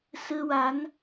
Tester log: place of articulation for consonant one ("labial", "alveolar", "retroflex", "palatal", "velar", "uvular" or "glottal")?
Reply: alveolar